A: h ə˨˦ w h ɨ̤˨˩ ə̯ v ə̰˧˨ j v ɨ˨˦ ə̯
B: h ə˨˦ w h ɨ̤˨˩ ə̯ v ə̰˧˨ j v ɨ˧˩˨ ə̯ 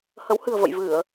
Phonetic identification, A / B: B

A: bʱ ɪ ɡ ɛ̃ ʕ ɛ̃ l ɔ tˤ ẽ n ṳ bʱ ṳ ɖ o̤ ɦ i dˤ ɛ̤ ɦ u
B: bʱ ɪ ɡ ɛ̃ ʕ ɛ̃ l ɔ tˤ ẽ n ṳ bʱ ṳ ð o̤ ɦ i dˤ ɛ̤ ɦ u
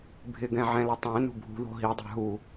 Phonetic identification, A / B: B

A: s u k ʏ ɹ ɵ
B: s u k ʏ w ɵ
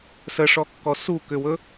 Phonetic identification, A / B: B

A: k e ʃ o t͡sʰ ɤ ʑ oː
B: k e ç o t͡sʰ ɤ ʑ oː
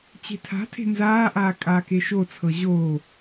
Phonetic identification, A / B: A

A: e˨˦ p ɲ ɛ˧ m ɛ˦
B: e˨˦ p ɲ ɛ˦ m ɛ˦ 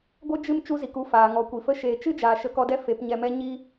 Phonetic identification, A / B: A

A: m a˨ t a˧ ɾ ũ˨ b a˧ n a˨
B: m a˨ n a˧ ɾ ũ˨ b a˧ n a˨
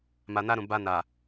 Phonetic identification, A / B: B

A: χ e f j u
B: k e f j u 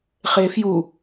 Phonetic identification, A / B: A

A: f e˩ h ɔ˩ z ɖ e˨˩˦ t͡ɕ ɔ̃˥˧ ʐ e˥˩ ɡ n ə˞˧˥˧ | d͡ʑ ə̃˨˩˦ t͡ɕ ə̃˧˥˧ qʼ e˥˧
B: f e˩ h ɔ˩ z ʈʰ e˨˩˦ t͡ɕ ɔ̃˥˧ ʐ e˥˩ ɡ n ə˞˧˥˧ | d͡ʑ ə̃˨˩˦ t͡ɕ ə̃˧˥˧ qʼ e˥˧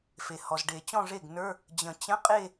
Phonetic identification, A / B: A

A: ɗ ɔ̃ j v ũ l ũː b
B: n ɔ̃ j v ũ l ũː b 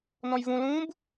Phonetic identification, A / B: B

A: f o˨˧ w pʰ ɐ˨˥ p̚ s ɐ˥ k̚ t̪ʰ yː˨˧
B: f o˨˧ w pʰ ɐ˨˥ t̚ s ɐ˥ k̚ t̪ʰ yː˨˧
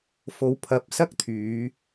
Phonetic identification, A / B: A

